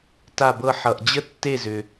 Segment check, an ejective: absent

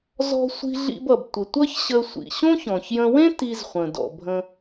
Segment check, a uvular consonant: present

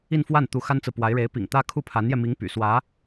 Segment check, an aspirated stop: present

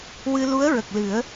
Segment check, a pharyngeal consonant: absent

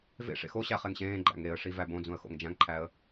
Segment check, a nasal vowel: present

